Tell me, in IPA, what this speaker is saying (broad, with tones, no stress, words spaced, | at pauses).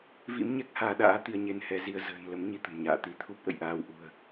vḭ˧˥mɲɛ˦˥k̚ haː˧ɗa̰ː˧˥t̪i˧ə̯ ɲe˧nhɛ˨˦zi˧ə̯ zə̤ː˨˩nlə˨˦m ɲi˧t̪ə̤˨˩mɲa̰ː˧˨ t̪i˧t̪ʰu˦˥p̚ʔə̰˧˨jʔaː˧w ʔṳ˨˩ə̯